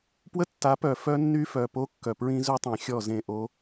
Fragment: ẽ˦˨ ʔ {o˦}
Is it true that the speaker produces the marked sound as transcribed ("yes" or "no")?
yes